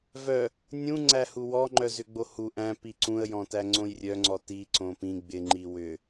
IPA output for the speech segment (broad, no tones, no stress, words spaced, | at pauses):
vœ | nʲũŋ͡ǀæhu wɔŋ͡ǃœ zʏɡ͡bohu ʔæ̃ piǀũə̯jɔ̃tæ ŋ͡ǀõjrʲœŋ͡ǀɔ ti ǀõpĩ ɡ͡bɪŋ͡ǃi wʏ